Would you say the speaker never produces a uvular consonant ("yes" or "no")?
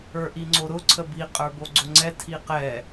no